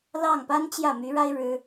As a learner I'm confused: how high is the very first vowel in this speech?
low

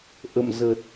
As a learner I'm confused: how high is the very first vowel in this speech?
mid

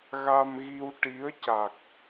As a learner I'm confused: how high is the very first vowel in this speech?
low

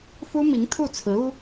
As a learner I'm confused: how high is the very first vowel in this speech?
high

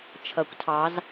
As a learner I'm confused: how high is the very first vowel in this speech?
mid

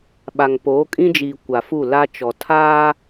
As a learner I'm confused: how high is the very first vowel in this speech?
low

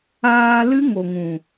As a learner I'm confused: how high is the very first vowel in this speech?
low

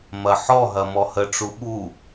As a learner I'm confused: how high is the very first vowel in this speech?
low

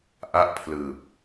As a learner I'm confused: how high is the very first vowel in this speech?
low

